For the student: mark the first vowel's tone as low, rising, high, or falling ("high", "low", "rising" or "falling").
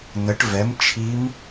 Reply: rising